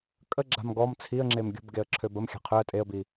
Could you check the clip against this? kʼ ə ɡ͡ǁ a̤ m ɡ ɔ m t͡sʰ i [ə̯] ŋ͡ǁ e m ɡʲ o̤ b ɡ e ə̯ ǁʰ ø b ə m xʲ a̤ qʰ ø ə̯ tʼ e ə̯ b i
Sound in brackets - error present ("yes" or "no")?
no